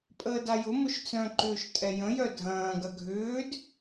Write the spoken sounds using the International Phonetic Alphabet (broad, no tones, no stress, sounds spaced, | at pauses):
pʼ əː d a j ʊ m ʊ ʃ t͡s œ̃ ǃ ʏː ʃ tʼ ɛ j ə̃ j œ dʱ ɐ̃ː ɡ ɐ ɡʱ ʏː d